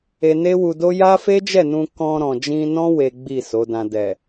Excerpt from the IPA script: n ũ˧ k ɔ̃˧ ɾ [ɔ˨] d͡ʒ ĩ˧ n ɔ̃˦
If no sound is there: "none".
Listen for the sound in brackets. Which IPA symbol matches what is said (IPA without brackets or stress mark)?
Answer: ɔ̃˨